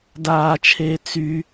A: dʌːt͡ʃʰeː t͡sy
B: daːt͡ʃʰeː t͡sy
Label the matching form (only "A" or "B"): B